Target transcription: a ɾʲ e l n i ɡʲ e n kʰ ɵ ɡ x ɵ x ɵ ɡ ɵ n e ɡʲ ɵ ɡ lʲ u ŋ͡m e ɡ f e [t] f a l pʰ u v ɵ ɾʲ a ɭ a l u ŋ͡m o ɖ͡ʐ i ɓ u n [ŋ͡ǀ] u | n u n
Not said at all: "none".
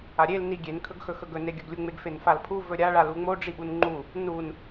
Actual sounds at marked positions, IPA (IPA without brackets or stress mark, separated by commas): n, ŋ͡ǃ